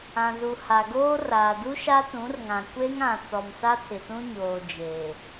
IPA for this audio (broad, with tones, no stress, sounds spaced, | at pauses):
ã˨ z u˨ h a˨ ɡ oː˦ r aː˨ d u˦ ʃ a˦ t ũ˨˦ r ŋ ã˨ kʷ e˦ ŋ ã˨ t͡s ɔ˨ m s a˦ tʰ ɪ˨ t ũ˦ ɲ oː˨ d͡ʒ eː˨